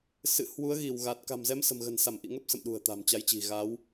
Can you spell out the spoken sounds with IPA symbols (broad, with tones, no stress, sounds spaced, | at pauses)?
s ɨ̰˧˨ h w u˨˦ ə̯ ɣ i˧˩ w ɣ a˨˩ t̚ k a̤˨˩ m z ɛ˨˦ m s ə̤˨˩ m ɣ ə̤˨˩ n s a˧˩ m ʔ ḭ˧˨ ŋ ə˦˥ p̚ s ə̰˧˨ m ɗ ṳ˨˩ ə̯ t̪ a̤˨˩ m t͡ɕ a˨˦ j t͡ɕ i̤˨˩ ɣ a˨˦ w